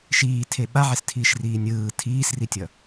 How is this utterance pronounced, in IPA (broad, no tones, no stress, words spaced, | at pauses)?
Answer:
ʃiːtʰe ɓaʕestʰiːʃriː nʲɯː tʰiːsritʲʌ